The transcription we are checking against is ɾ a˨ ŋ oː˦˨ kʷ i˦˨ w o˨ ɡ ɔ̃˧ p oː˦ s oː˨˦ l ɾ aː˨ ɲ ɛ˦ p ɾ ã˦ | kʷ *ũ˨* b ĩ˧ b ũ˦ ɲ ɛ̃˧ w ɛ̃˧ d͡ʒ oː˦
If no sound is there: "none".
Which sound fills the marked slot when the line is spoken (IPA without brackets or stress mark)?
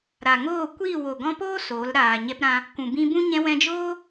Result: ũ˨